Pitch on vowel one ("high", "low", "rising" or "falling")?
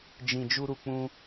low